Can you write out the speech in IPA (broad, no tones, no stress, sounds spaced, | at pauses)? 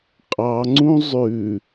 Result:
qʼ ɑ ŋ͡ǀ ũ zˤ ʉ